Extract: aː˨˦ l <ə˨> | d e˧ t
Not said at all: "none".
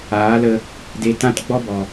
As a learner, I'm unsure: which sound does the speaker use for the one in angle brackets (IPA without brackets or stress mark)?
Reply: ə˧